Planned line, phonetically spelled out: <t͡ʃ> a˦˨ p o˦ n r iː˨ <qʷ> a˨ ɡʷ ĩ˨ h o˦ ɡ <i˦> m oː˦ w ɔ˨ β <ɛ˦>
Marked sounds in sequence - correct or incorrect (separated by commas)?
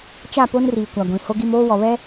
correct, incorrect, correct, correct